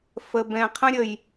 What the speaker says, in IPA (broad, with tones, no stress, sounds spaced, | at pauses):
f ə˧ b ɛ̃˧ qʰ ə̃˦ ɾʲ ə˧ j